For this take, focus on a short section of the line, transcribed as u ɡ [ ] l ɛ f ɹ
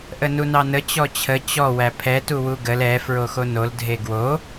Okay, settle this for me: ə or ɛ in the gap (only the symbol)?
ə